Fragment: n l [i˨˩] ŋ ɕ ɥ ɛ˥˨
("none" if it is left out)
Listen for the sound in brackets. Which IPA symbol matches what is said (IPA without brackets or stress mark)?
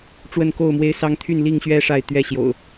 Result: i˥˨